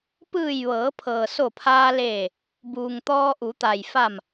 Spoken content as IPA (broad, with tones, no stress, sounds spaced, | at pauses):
p ɯː˧˩ j ʋ ɤː˩˧ pʰ ɤː˩ s o˧˩ pʰ aː˧ l eː˧˩ | b uː˩ ŋ t̪ ɔː˧ ʔ u˩˧ t̪ a˩ j f a˧˩ m